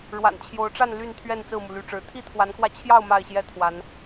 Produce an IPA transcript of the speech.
ɻ w a̰˨˩ n t͡ɕʰ j o˨˦ ʊ̯ ʈ͡ʂ a˥˨ n l y˥˨ n t̪ʰ ɥ ɛ˥˨ n t͡s ɹ̩˥˨ m u˩ l y˨˦ ʈ͡ʂ ɻ̩˨˦ t̪ʰ i˥˨ t̪ʰ w a˨˦ n k w ä˧ t͡ɕʰ j ɑ˥˨ ʊ̯ m a˥˨ ɪ̯ ɕ j ɛ˦ t̪ʰ w a˨˦ n

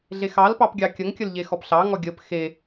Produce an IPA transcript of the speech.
ɮ e x ɑ l p ɑ p ɡʲ ɑ kʲ ə ŋ kʲ ə l ʎ e x ɔ p ɬ ɑ ŋ ɔ ɡʲ ə p x e

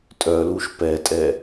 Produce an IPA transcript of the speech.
tʼ œ l u ʃ p ɛ tʼ ɛ

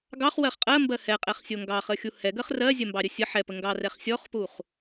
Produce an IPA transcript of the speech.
ɡ ɑ χ w ɜ χ qʼ ɜ m b ɜ h ɛ qʼ ɛ χ sʲ o ŋ ɡ ɑ χ ə xʲ u h ɛ ɡ ɜ χ r ɜ zʲ ɜ m b ɑ ɾʲ ə sʲ ə ħ ɛ p ə ŋ ɡ ɑ r ɛ χ sʲ ɔ χ p u χ

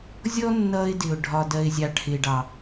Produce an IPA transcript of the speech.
zʲ ɔ˦ nː ʌ˧ ɪ̯ d ɪ˨ ʊ̯ ɖʱ ɒ˨ d ɜ˨ ɪ̯ zʲ ɑ˨ ʈʰ ɪ˨ ɖ ɑ˨

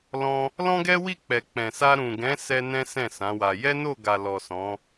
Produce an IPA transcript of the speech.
l ɔ̃˧ | l ɔ̃˦ ɡ ɛ˦ w i˦˨ k͡p ɛ˨ k͡p ɛ̃˨ s a˧ ɾ ũ˨ ɡ ɛ̃˨˦ s ɛ˧ n ɛ̃˦ s ɛ̃˦˨ s ã˨˦ w a˧ j ɛ˦ n o˦˨ ɡ a˨ l ɔ˨ s ɔ̃˨˦

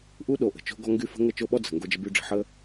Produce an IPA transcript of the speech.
ʔ u˦ ɗ o˨ ʔ ə̤˨ t͡ʃ o̤˦ ɡ ɔ˦ ŋ ɡ y˦ f ə̤˦ ŋ ə˦˨ t͡ʃ o˦ ɓ ɔ˦ d͡z ə̤˨ ŋ ɡ o˦ d͡ʒ ə˦ b y˦ ɖ͡ʐ ə̤˨˦ ħ ə˦

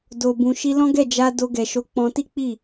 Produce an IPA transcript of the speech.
d o˨ b ũ˨ ʃ i˧ l ɔ̃˦ ɡ ɛ˦˨ d͡ʒ a˧ d o˧ ɡ ɛ˨ ʃ o˨˦ k͡p ɔ̃˧ t i˦ k͡p i˦˨

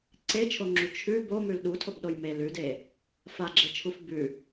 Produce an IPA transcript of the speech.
ǀ e t͡ʃʰ o ŋ͡ǁ u t͡ʃʰ ʉ b o m ʉ l ɗ u tʰ o b ɗ o j m e l ʉ d e | f a ɡ͡ǁ e t͡ʃʰ u f b ʉ

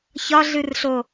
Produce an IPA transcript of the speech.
ç ɒ ɮ ɨ r ɬ o

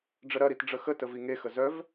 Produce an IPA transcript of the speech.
ɖ͡ʐ ə ɾ ɐ ɾ i t ɖ͡ʐ ə x ə t ə v i ŋ e x ə z œ v

